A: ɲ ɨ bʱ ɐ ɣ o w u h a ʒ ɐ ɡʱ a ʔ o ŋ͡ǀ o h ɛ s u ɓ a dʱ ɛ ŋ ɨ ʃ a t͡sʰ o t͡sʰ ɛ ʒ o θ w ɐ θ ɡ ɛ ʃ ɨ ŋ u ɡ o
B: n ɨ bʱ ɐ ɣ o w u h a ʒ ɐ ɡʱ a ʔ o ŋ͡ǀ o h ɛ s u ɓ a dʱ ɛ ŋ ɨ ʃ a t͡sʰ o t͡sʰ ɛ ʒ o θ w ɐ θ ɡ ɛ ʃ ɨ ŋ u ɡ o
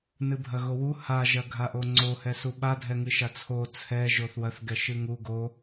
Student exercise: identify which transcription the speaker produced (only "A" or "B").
B